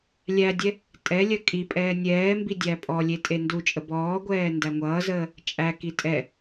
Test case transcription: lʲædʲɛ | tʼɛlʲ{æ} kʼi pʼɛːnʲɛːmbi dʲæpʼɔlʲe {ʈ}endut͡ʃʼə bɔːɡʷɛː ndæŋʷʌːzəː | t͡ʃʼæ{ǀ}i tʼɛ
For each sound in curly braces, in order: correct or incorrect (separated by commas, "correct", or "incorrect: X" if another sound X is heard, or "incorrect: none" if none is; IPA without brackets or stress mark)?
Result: incorrect: ɜ, incorrect: tʼ, incorrect: k